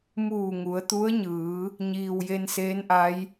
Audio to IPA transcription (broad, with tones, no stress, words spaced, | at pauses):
muː˧˩ŋu˩˧ə̯t̪u˧˥ə̯ɲɯː˩˧ | ɲiː˩wje˧nseː˧˥nʔa˧˥j